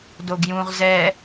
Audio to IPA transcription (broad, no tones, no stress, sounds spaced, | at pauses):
d o ɡ j ũ ʁ z ɛ